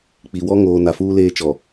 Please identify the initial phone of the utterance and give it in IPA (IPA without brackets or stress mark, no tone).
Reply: k͡p